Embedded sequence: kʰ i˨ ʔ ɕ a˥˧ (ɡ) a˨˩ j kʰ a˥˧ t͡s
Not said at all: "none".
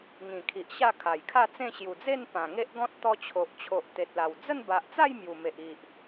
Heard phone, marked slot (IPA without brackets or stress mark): kʰ